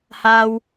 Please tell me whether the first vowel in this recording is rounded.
no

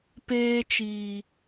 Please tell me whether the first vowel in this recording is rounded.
no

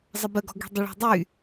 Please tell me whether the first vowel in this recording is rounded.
no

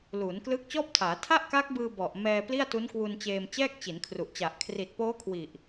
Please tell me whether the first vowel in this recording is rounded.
yes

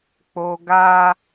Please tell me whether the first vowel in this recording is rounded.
yes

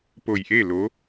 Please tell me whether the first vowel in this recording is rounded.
yes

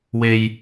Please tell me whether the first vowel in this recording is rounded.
no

